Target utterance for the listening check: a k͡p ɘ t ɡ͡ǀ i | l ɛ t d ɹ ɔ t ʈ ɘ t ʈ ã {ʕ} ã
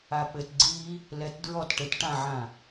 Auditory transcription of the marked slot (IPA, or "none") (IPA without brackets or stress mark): ʕ